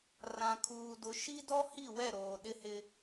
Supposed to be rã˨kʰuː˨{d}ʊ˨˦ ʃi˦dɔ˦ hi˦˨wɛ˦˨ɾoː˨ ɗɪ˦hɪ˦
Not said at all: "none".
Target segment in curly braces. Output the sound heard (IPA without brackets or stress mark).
d